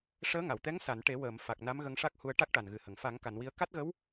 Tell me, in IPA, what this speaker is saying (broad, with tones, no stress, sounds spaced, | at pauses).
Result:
ʂ əː˧˥ ŋ a˨˩˨ w t̪ ɛ˧˥ ŋ s a˨˩˨ n ʈ e˨˩˦ w əː˨˩˨ m f a˨˩ k̚ n a˧˥ m ɣ ə˧ ŋ ʂ a˦˥ k̚ h u˧ ə̯ ʈ a˦˥ k̚ ʈ a˨˩ n ɣ ɨ˨˩ h ə˨˩˨ ŋ f a˨˩˦ ŋ k a˨˩˨ n w i˧ ə̯ k a˦˥ t̚ ɣ ə˧˥ w